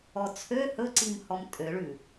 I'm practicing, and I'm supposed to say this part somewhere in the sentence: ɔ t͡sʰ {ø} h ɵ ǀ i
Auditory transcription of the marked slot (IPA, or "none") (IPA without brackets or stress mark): ø